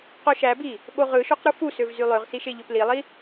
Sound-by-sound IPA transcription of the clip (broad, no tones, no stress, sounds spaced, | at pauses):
q o ʃ æ b i | ɓ o ʁ ɯ ʃ o q ɾ u f u s ø v z y lˠ ø ʁ s i ʃ e ʎ ø p l i lˠ i